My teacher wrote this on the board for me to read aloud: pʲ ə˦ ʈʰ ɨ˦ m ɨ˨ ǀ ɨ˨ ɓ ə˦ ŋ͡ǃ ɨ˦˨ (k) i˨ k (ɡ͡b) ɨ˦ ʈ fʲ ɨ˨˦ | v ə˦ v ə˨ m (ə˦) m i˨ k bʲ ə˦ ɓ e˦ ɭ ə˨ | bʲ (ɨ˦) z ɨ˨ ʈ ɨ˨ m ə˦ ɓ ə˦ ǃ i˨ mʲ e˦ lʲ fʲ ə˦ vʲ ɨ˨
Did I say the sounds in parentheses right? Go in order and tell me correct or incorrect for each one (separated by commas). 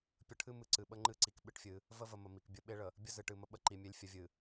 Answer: incorrect, incorrect, incorrect, incorrect